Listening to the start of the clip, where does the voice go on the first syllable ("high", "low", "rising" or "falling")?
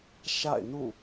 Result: falling